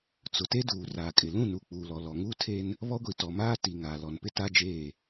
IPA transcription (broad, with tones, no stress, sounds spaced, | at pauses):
t͡s ʊ˨ t e˦ d uː˨ r aː˨ kʼ ɪ˨ l ũ˦˨ n u˨ k͡p uː˨ l ɔ˨ l ɔ˨ ŋ uː˦ tʰ e˦ n | β ɔ˦ ɡʷ i˨ t ɔ˨ m aː˦ t i˨ ŋ aː˨ l ɔ˨ n p ɪ˦ t a˦ d͡ʒ eː˦˨